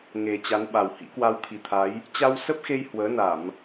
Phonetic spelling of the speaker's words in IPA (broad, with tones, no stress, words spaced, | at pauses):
ŋe˨˩ t͡ɕa˨˦nɓa˨˩w hḭ˧˥kwa˧wt̪ʰi˨˩t̪ʰa˨˦j | t͡ɕa˧wsə˦˥p̚xe˧j hwəː˨˦na˧˩˨m